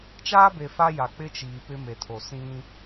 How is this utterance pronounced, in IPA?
t͡ʃ aː˦ b e˨ f a˦ j a˨ k͡p ɪ˦ t͡ʃ iː˨ p ɪ˦ m e˨ tʰ o˨ s ĩ˦

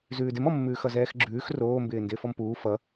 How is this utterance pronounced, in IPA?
z ʉː d ɪ m ɔ mː ʉː x ʌ z ɛː x ɡ͡ǁ ʉː x r oː m b ɪː n d ɪː f ɔ m p uː f ʌ

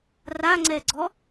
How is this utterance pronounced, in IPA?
r a ŋ͡ǀ ɛ ɡ͡ǀ ɔ

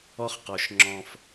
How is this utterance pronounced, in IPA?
ɔ˦ χ q ɔ˨ ʃ ŋ͡ǁ ɔ̃˦ f

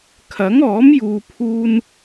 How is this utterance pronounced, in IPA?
kʰ ɐ˨˥ ŋ ɔː˨˥ m j uː˨ pʰ uː˧ n

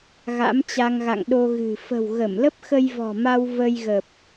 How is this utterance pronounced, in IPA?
ɣ a̰˧˥ m t͡ɕ a˧ ŋ ɣ a̰˧˨ ŋ ɗ o˧ ɣ ɨ̤˨˩ f ə̤˨˩ w ɣ ə˧˩ m l ə˦˥ p̚ x ə˧ j v ɔ̤˨˩ m a˧ w v ə˧ j ɣ ə˨˩ p̚

